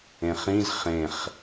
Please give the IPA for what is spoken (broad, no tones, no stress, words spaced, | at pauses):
ẽχĩz χẽχ